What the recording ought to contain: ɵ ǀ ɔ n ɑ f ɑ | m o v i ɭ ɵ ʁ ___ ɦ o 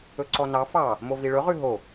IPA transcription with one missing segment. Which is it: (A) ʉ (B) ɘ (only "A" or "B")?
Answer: A